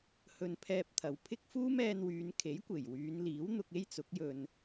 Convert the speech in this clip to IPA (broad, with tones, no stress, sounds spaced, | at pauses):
h ɵ˧ n pʰ ɛː˧ p̚ t̪ʰ ɐ˨ w pʰ ɪ˥ k̚ f uː˥ m ɛː˧ n w yː˨˧ n kʰ e˨˥ j kʷ e˨˩ j w yː˨˧ n l iː˨˥ w n̪ ʊ˧ k̚ e˥ j t͡s ʊ˨˥ k̚ j ɵ˧ n